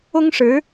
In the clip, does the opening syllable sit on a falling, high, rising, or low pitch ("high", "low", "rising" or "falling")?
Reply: high